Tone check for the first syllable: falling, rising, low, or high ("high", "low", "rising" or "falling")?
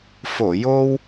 low